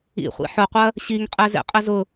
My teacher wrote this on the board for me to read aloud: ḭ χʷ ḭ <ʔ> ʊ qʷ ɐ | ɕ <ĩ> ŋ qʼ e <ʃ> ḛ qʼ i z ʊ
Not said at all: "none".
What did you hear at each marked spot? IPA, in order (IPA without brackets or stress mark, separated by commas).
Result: ħ, i, z